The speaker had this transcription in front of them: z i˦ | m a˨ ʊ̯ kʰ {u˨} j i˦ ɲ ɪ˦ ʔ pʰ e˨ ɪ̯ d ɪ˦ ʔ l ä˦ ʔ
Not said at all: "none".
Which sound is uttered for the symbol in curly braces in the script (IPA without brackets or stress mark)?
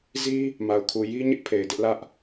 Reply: u˨